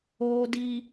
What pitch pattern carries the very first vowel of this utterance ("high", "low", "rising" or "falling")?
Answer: high